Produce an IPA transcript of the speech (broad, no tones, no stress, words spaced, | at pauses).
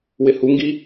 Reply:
wɪhuŋɡi